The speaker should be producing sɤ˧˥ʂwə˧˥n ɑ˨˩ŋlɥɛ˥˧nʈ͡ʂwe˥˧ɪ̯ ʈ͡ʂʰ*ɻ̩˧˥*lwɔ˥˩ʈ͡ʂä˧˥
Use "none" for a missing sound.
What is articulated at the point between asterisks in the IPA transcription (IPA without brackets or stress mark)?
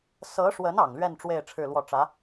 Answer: ɻ̩˥˧